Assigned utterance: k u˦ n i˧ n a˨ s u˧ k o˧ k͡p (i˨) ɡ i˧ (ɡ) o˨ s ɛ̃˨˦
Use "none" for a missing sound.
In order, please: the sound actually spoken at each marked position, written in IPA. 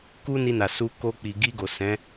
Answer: i˨, ɡ

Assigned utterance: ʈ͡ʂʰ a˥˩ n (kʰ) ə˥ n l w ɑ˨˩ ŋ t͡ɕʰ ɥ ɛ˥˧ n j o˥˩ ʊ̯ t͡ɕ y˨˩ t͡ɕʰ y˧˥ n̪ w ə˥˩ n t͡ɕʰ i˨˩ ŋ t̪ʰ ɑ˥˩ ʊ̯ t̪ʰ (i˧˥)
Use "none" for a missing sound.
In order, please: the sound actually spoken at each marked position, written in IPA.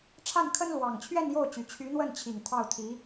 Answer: kʰ, i˧˥

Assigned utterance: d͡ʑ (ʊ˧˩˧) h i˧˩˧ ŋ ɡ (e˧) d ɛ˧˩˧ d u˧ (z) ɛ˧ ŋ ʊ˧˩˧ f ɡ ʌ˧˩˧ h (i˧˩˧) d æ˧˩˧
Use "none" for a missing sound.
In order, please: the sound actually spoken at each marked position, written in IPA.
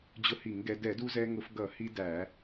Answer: ʊ˧, ɛ˧, z, i˧

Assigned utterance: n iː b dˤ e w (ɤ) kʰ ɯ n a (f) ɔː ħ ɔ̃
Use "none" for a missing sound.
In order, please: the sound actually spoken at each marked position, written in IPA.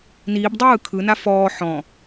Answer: ɯ, f

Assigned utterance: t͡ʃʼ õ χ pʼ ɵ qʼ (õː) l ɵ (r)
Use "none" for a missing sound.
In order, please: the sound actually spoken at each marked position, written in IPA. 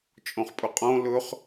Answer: õ, χ

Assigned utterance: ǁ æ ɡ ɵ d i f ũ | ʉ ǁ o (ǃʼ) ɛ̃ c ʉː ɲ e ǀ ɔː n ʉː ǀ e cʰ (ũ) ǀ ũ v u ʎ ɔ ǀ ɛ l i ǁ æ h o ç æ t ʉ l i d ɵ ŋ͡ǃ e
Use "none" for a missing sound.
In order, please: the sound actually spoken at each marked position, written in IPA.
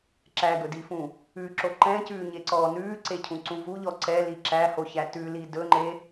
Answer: ǃ, ũ

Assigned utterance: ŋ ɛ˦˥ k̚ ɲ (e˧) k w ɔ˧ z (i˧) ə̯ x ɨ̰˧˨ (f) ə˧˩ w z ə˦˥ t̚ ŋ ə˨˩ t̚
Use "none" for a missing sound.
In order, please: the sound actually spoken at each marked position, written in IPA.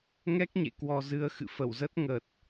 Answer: ḛ˧˨, ɨ˧, f

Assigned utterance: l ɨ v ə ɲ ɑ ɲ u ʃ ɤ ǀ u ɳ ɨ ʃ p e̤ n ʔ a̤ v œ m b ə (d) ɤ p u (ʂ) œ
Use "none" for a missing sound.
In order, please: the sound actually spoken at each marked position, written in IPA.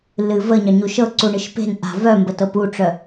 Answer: t, ʈ͡ʂ

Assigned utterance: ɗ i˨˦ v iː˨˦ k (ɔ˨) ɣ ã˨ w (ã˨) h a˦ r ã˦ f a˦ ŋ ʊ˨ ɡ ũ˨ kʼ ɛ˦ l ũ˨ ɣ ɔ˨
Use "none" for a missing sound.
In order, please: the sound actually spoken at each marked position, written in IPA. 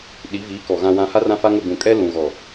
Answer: ɔ˨, ã˨

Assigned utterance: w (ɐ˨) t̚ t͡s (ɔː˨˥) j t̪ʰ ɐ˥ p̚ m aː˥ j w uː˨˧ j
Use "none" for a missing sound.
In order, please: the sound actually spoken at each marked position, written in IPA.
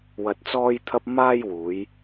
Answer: ɐ˧, ɔː˥

